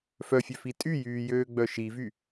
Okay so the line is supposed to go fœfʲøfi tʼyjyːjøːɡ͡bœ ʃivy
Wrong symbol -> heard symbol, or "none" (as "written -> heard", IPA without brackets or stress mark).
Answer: none